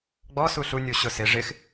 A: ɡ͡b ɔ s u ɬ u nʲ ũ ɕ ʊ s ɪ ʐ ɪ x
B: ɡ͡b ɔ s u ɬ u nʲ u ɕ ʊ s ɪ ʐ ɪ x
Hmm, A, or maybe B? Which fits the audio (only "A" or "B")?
B